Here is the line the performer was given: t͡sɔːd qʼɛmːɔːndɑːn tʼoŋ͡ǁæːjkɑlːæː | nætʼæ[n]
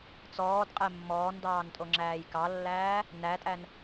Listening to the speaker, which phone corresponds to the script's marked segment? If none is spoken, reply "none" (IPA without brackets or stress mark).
n